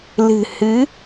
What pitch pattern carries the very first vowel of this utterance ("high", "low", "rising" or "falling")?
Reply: low